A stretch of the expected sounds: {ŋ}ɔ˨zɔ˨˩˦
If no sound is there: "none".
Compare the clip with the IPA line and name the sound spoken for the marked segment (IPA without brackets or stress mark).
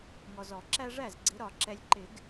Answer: ŋ